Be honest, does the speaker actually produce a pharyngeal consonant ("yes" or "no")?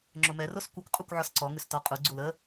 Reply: yes